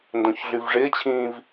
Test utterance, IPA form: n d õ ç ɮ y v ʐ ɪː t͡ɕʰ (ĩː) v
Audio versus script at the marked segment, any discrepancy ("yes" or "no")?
no